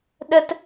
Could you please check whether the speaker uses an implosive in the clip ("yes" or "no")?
yes